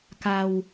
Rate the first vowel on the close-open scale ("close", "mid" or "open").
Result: open